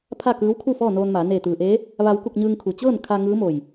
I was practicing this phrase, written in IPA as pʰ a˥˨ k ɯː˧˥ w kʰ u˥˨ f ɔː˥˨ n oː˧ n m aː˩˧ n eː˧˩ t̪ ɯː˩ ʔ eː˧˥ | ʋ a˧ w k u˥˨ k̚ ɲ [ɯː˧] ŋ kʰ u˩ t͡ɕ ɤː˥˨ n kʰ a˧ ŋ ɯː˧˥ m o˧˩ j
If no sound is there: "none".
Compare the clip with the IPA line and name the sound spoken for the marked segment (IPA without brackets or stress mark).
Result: ɯː˧